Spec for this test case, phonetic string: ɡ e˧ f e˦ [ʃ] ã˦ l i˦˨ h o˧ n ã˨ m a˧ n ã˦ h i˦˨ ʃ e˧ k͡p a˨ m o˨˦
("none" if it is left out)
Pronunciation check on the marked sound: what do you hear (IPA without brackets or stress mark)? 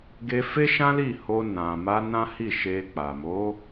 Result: ʃ